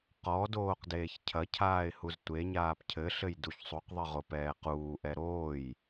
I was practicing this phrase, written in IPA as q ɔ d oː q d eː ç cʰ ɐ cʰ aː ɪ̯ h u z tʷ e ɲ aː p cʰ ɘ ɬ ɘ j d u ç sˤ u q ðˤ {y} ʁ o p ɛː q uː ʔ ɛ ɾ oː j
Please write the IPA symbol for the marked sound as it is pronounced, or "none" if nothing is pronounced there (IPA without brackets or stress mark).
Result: ɨ